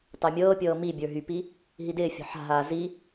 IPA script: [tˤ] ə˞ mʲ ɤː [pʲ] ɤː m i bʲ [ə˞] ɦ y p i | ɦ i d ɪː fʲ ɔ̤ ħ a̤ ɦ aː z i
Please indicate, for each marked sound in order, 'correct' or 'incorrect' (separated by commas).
correct, correct, correct